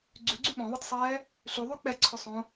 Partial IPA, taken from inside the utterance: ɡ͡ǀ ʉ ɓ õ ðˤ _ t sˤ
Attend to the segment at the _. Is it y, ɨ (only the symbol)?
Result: ɨ